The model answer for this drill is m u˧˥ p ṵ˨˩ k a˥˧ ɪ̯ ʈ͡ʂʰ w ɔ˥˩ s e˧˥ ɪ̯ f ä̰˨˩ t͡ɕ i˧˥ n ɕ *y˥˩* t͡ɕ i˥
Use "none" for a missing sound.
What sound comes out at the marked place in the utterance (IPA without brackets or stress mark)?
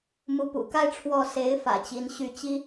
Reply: y˥˩